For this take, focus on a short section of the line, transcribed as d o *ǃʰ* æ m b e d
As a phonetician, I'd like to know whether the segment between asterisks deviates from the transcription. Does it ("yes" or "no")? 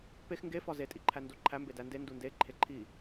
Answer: no